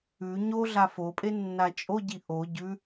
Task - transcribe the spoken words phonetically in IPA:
ʉ ɲ o ɮ a f o pʼ e nː a t͡ʃʼ o ɟ i ʔ o ɟ ʉ

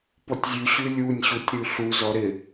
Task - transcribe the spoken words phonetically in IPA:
p ɔ tʲ zʲ ʉ ɕ ʉ lʲ u nʲ ɕ u tʲ ɾ ʉ ɬ u z ɔ ɾ ɪ

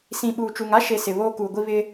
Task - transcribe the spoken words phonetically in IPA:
s ĩ˨ ɓ uː˨ t͡ʃ u˨ ŋ a˦ ʃ e˦ s ɪ˨ β oː˦ k uː˨ ɡʷ i˦ β ɪ˦

